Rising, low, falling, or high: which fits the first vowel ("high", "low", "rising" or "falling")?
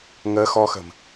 rising